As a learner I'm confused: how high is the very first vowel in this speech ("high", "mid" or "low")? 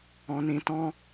mid